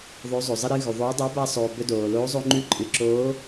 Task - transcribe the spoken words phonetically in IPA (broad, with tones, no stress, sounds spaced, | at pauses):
ðˤ o˨˥ zˤ o˩ zˤ ɨ˧ ɾ ɨ˧ ɣ ʉ˩ ðˤ oː˨˥ dˤ o˨˥ b a˧ sˤ oː˩ b ɵ˧ d oː˩ l oː˨˥ zˤ o˧ ŋ͡ǃ ʉ˧ ǃʼ ɨ˩ ǁ oː˨˥